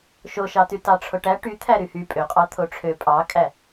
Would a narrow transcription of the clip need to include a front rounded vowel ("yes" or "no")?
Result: yes